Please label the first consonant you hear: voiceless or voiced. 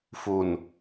voiceless